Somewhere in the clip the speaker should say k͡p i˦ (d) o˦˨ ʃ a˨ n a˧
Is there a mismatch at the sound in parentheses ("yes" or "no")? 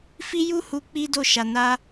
no